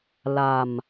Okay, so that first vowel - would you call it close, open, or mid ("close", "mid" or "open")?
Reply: open